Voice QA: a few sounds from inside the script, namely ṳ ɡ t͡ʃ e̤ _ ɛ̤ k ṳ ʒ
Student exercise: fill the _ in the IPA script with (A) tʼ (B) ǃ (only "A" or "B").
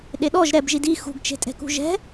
A